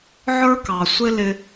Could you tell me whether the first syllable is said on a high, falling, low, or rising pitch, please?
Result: high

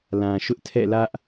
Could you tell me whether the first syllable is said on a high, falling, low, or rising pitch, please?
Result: low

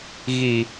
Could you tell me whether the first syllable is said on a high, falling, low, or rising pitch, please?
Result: low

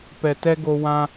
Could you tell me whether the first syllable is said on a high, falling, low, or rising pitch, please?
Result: low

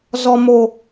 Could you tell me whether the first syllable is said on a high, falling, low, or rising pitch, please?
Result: low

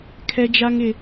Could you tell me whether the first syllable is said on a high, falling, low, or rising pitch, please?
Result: high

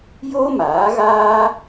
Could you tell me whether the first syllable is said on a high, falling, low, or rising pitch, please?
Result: high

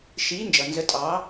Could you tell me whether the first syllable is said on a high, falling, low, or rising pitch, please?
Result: rising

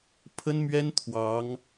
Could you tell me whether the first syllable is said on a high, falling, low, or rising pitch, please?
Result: high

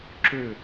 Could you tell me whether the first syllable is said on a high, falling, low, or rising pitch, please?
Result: falling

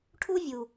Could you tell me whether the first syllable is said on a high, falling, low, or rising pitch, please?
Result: high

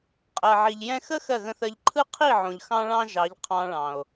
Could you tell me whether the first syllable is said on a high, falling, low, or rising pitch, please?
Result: low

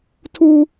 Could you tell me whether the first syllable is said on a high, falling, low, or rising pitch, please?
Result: high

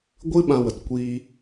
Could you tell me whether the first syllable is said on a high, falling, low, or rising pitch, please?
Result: high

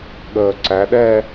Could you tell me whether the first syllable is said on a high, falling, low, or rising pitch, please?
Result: low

